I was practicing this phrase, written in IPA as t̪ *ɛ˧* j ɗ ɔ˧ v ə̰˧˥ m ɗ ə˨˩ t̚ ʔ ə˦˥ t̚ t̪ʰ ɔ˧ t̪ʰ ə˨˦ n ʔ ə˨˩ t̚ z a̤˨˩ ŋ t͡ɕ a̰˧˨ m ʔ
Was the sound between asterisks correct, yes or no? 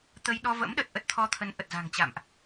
no